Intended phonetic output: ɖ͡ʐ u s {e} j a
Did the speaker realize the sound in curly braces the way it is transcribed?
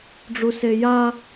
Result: yes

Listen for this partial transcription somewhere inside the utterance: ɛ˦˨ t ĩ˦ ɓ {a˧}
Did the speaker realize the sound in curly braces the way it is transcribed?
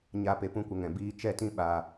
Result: yes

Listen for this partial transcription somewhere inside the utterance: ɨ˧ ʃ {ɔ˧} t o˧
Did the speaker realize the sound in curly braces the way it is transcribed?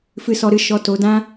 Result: yes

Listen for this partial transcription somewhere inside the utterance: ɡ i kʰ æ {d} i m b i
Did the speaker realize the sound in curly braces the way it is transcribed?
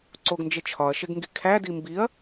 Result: yes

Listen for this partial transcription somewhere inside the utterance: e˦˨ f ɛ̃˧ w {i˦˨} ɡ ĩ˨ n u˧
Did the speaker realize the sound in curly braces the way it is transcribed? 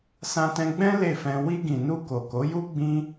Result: no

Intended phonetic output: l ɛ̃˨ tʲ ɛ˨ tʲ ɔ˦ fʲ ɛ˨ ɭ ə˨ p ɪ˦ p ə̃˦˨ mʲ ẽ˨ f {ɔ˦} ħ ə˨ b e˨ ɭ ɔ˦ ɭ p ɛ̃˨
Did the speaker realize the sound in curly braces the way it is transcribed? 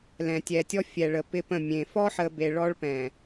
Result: yes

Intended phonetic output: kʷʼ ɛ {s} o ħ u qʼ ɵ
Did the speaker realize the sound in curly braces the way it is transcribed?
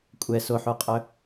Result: yes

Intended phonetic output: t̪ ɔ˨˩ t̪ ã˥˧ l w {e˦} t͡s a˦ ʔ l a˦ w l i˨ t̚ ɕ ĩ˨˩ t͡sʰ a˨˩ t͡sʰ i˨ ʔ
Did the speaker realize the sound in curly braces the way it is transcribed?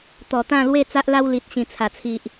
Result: no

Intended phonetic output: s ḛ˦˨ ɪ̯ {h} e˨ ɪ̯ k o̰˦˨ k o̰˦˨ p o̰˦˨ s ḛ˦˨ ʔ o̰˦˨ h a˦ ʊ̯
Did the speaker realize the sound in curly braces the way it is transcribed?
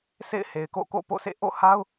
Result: yes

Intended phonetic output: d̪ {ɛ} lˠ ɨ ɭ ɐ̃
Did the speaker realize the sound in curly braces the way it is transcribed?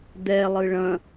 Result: yes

